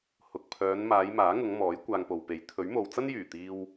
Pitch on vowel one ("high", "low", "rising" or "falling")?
low